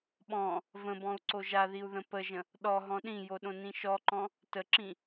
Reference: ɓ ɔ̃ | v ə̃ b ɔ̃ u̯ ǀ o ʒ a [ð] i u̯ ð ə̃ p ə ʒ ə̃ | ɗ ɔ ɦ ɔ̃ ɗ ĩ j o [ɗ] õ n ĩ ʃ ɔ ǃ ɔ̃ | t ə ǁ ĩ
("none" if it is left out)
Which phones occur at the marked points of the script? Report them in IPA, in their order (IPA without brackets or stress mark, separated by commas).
ð, ɗ